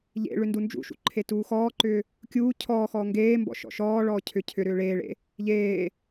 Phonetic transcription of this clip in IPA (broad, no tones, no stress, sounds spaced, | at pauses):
ʎ ḛ ɭ ʏ n d u n d͡ʒ ṵ ʃ ṵ ǃʰ e t uː x ɔː ǃ ʏː | kʲ uː cʰ ɔː x ɔː ŋ ɡ eː m b ɔ̰ ʃ ɔ̰ ʃ ɔː ɭ ɔː cʰ ʏ cʰ ʏ ɾ ʏː ɭ eː ɭ ḛ | ʎ eː